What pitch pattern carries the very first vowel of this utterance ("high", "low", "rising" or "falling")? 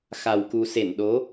low